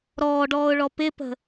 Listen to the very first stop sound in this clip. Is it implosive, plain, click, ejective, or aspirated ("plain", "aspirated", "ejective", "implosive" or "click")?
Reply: plain